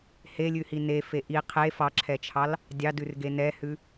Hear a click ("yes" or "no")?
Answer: yes